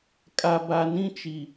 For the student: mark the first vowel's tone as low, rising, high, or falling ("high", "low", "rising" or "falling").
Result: low